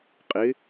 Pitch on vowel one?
rising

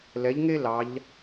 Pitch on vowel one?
rising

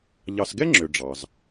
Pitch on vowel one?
low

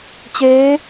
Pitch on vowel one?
rising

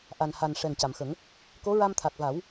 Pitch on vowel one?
low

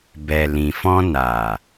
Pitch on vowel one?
low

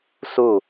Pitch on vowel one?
falling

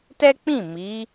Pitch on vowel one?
high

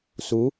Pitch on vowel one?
rising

